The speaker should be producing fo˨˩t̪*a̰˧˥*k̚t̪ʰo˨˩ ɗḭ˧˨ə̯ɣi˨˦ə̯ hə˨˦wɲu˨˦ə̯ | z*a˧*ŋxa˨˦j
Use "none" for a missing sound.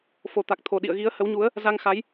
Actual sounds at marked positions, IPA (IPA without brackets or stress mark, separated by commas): a˨˩, a˧